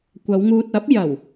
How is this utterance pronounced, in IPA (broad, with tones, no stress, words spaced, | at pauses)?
kʷɐ˨˧wŋuː˧t̚ɐ˨˥p̚ jɐ˨˩w